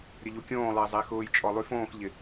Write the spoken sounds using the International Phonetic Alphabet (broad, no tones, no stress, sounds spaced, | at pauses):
ɾʲ ə ʎ u kʲ õː lˠ ɪː zˤ ɪː x ʊː j t͡ʃʼ ɔ lˠ y f õː x ʎ ɪ